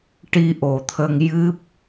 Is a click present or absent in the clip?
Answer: absent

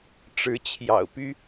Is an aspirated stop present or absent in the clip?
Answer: present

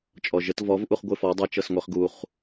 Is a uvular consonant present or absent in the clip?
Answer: present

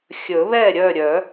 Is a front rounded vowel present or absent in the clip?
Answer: present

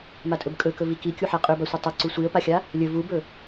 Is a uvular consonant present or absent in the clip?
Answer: present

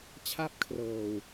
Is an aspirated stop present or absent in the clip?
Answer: present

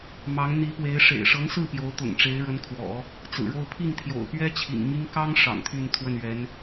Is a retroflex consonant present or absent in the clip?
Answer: present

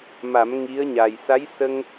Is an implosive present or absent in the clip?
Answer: absent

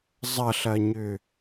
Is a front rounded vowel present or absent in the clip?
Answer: present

